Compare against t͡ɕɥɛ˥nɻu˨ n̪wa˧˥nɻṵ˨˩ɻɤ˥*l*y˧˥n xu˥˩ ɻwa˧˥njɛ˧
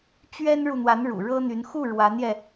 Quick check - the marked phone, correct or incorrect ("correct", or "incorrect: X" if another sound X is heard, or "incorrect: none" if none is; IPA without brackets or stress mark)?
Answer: incorrect: n̪